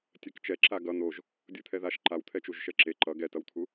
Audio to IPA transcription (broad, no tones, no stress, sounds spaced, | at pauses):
tʲ ɛ k t͡ʃ ɛ ǁ a ɡ ʌ n̪ o ʒ | dʲ ɯ t̪ʰ ɛ ð a ʃ ǃ a w t̪ʰ ɛ t͡ʃ u ʒ ʃ ɛ ǁ e ǃ ʌ ɡ ɛ t ʌ w t̪ʰ u